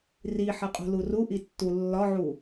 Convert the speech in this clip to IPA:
r i ħ ɐ qʼ ṳ l u r u ʔ i tː u lː ɒ ʕ u

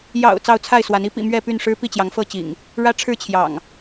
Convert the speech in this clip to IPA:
j ɑ̰˨˩ ʊ̯ t͡s ɑ˥˨ ʊ̯ t͡sʰ a˥˨ ɪ̯ s w a˨˦ n i˨˦ p ḭ˨˩ m ɥ ɛ˥˨ p y˥˨ n ʂ ɻ̩˦ p i˥˨ t͡ɕ j ɑ˨˦ ŋ f ɤ˥˨ t͡ɕ ḭ˨˩ ŋ | ɻ ä˦ ʈ͡ʂʰ ɻ̩˥˨ t͡ɕʰ j ɑ̰˨˩ ŋ

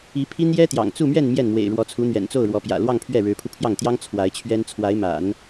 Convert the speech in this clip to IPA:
i˧˥ pʰ i˥ n j ɛ˥ t̪ j ɑ̰˨˩ ŋ t͡s u˥˧ m ɥ ɛ˥˧ n m j ɛ˥˩ n m w ḛ˨˩ ɪ̯ ɻ w ɔ˧˥ t͡sʰ u˧˥ n̪ ɥ ɛ̰˨˩ n t͡s o˥˩ ʊ̯ ɻ w ɔ˧˥ p j ä̰˨˩ l w ɑ˥˧ ŋ pʰ ɥ ɛ˥˩ ɻ ɻ̩˧˥ pʰ u˧ pʰ j ɑ˥˩ ŋ t̪ j ɑ˥ ŋ t͡sʰ w a˧˥ ɪ̯ t͡ɕʰ ɥ ɛ˥ n t͡sʰ w a˧˥ ɪ̯ m a̰˨˩˦ n

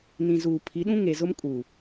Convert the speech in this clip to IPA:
n ĩ˨ z uː˨ pʰ i˨˦ ɗ ũ˦ ŋ e˨ z ʊ˦ m kʼ uː˨

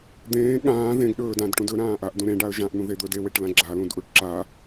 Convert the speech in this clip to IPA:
d̪ ẽː ɠ ãː ð ẽ ɡ ɗ ɵː d ã d ʈ ũ d ɵ ɾ ãː ʔ a ʔ d ũ ɾ ẽ ɖ a ə̯ ʒ ã ʔ n̪ ũ ð e d̪ ɵː d e w e ʈ l ã ɡ͡ǁ a l ũ d ʔ u ʈ ǁ a

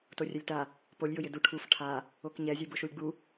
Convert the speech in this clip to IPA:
t o rʲ ɛ lʲ t a | p o lʲ j ʊ j ɪ d u ʈʰ u f ʈʰ a | o k ɲ ɛ zʲ u b ʊ ʃ u lʲ ɡ͡b u

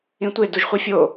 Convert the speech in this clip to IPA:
ĩ tʷ e d u ʒ χʷ i fʲ o

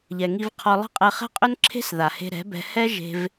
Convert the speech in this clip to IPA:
ʎ ɛ˨ ŋ i˧ v qʰ ɔ˧ lˠ ə̤˦ qʼ ɛ˧ χ ɛ̤˦ qʼ ʏ˦ n ǁʰ e̤˦ s ð a˨ h e̤˧ ɾ ɛ̤˨˦ b ɛ̤˧ h ɛ˦ ʒ e̤˧ v

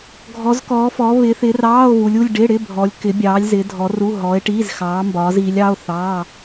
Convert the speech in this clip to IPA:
ɡʱ ɔ˨˦ z k ɔː˨˦ f ɔ˨˦ β ɪ˨˦ θ ɪː˨˦ r ɑː˧˥˧ o̯ β u˨˦ lʲ u˧˥˧ lʲ ɖ ɪ˧˥˧ ɽ ɪ˧˥˧ bʱ ɔ˨˦ lʲ k ɪ˨˦ bʲ ɑː˨˦ lʲ z ɪ˨˦ dʱ ɔ˨˦ r u˧˥˧ ɦ ɔː˨˦ e̯ ʈ iː˧˥˧ z x ɑː˨˦ m b ɒː˨˦ z iː˨˦ lʲ ɑ˧˥˧ o̯ θ ɑː˧˥˧

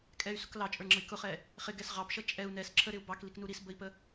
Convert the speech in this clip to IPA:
kʼ ɛ y̯ s ʊ k l ɑ t͡ʃʼ ə˞ ŋ͡ǁ ʌ i̯ k ʊ χ ɛ | χ ɪ ɡ ɛ s ʁ ɑ p ʃ ʌ t͡ʃʼ ɛ u̯ n ɛ s ǁʰ ə ɾ ɪ u̯ b ɑ k l i k n u ɾ i s b ə i̯ p ə

